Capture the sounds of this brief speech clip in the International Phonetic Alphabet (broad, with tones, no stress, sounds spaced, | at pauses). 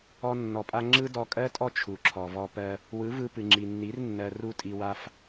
ɔ˧ nː ɔ˨ pʼ a˧ ŋ͡ǁ ɯ˦ d ɔ˧ kʼ ɜ˦ tʼ ɔ˦ t͡ʃʰ u˨ ǁʰ ɔ˨ v ɔ˧ p ɜ˧ | w ɯ˨˦ v ɯ˧ p ɨ˨ ŋ͡ǁ i˨ nː i˨˦ r nː ɜ˧ r u˦ tʼ i˧ w a˦ f